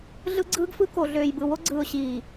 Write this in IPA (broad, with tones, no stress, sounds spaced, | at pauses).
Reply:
ɮ ɯ˦ ɡ͡ǀ ɯː˦ ɡ f ɯ˦ k o˨ ɮ øː˨ j b ɯ˨ w o˦ ɡ͡ǀ ɯː˨ ʊ̯ ɕ iː˨